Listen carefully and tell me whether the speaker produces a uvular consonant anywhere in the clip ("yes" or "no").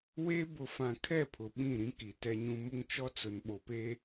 no